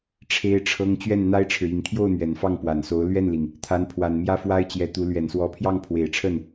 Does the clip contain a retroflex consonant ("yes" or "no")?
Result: yes